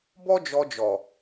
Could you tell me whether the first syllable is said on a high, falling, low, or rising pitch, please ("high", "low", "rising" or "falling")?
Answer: high